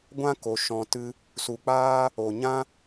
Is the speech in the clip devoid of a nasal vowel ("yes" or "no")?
no